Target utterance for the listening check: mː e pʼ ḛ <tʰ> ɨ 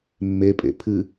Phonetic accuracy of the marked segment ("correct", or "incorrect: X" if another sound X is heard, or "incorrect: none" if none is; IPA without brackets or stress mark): incorrect: pʰ